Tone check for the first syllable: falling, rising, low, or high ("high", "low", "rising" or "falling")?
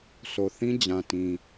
low